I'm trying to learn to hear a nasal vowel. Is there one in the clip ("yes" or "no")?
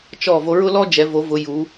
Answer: no